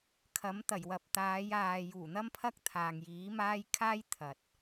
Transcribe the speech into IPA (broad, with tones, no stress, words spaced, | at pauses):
kʰɐ˨˥mt̪ɐ˨˩jwɐ˨p̚ t̪aː˨˧j aː˨ juː˨˩n̪ɐ˥mpʰɐ˥k̚ t̪ʰaː˨ŋjiː˨˥maː˥j kʰaː˥j t̪ʰɐ˨t̚